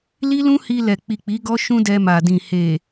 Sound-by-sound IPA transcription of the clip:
li˦lũ˦hi˧ lɛ˨k͡pi˨ k͡pi˨˦ɡɔ˦ʃũ˦ dɛ˧ma˨dĩ˨ he˨

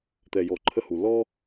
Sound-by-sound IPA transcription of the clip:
t̪ɛ˨jɔ˨ ǃʰə˦hu˨ lɔ˦

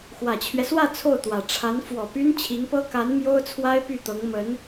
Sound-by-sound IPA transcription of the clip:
xwä˨˩t͡ɕʰɥɛ˦swä˥˧ t͡sʰo˥˩ʊ̯t̪wä˨˩ ʈ͡ʂʰa˧˥nfwɔ˨˩py˥n t͡ɕʰi˧˥ŋpɤ˥ ka˧˥n mjo˥ʊ̯t͡sʰwa˥ɪ̯ py˥˩t̪ɤ˧˥ŋ mə˧˥n

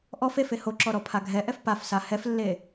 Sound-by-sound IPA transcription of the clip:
ʔɔf efe hoǁɔɾɔpʰa ɡʱɛʔɛf pafsa hɛflːe

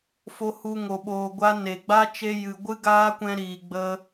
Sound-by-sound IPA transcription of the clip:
fo˧hu˧ ŋo˧ɓoː˧ɡʷa˦ ne˨ɡ͡ba˦ t͡ʃe˧jɨ˨ ɡʷɨ˦ɡaː˦kʷɛ̃˧ ɾiː˨ɡ͡bə˧

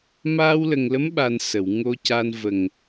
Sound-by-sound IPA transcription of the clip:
maː˧wlə˨˩ŋlə˧˥mɓa˨˩n sə˨˩˨wŋo˧ca˧n və˨˩ŋ

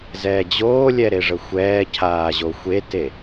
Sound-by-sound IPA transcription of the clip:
zɛːd͡ʑoːlʲɛ ɾeʐəxʷɛːcʰaː ʑoxʷete

